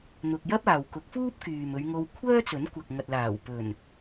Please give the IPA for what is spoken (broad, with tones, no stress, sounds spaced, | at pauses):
n̪ ʊ˧ k̚ j ɐ˥ p̚ aː˨ w k ʊ˨˥ k̚ f uː˥ p̚ k yː˨ m ɵ˨˧ ɥ ŋ o˧ w kʷʰ œː˥ t͡s ɵ˨˥ n kʷ ɐ˨ k̚ ŋ ɐ˨ t̚ l aː˨˩ w p ɵ˨˩ n